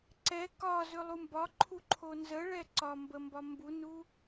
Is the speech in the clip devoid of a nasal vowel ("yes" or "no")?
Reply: yes